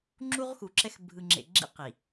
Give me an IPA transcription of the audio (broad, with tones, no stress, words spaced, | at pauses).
ŋ͡ǁu˦ʁxu˨ǁɛ˦x bʱɯ˨ŋ͡ǁḛ˨ɡ͡ǁḭ˦ qi˨